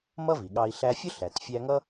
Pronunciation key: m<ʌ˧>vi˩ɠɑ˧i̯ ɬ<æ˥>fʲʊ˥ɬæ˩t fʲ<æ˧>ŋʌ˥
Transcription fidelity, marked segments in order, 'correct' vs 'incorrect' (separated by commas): incorrect, incorrect, correct